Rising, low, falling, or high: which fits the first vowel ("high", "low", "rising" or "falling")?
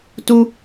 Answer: high